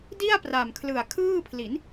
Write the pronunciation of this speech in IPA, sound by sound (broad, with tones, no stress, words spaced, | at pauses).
di˥˩a̯pra˨˩m kʰlɯ˨˩a̯kʰɯː˥˩pʰli˩˦n